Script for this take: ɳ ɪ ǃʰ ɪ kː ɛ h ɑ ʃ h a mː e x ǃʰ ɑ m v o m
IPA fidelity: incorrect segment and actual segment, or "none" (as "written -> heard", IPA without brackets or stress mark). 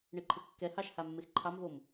none